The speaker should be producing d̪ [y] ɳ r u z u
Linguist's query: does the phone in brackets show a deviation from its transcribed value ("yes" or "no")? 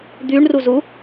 no